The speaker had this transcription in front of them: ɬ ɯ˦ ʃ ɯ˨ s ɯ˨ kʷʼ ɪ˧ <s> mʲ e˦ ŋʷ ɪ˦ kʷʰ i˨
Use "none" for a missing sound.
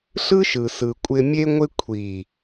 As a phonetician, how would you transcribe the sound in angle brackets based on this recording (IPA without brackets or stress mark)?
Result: none